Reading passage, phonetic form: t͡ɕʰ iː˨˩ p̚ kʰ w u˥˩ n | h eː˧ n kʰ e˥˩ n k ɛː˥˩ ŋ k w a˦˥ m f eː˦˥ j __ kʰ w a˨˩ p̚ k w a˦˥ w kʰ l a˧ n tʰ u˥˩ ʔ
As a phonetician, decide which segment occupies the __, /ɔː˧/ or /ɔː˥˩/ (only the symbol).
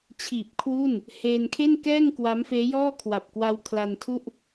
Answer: ɔː˥˩